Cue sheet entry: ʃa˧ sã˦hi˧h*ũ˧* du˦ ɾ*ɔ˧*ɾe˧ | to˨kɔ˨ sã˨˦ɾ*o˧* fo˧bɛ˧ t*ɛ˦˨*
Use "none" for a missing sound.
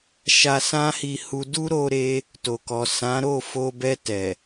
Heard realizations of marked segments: u˧, o˧, o˦˨, ɛ˨

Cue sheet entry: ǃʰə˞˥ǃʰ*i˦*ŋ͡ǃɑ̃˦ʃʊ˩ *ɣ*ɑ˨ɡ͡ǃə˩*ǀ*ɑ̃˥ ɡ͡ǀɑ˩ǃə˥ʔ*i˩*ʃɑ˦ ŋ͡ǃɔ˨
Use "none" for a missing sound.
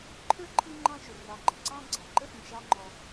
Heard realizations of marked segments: i˦, r, ǀ, ĩ˩

